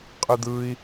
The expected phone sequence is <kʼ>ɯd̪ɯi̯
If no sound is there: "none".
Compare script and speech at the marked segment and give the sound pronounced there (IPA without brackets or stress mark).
qʼ